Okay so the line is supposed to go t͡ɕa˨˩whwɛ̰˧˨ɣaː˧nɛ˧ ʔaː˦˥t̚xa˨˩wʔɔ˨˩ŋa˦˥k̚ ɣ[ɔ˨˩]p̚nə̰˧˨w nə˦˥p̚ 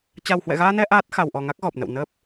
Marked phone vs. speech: correct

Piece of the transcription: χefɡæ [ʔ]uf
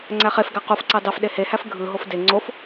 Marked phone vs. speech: incorrect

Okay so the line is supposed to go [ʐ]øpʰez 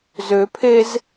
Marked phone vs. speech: incorrect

